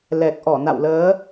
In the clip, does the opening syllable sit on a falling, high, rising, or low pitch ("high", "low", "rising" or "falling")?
low